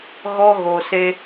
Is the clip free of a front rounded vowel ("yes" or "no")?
yes